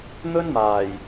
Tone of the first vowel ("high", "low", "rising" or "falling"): high